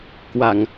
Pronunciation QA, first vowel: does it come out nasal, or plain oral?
oral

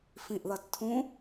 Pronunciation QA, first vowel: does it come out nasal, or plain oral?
nasal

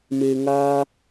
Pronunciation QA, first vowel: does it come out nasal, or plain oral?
oral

